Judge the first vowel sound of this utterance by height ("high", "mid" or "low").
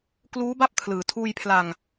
high